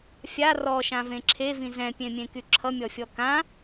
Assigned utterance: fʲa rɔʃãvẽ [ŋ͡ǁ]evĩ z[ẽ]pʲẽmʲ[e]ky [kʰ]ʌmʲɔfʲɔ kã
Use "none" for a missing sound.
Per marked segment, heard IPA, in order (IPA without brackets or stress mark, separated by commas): ǁʰ, ɛ̃, ẽ, ǁʰ